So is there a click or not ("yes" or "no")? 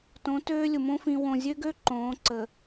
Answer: yes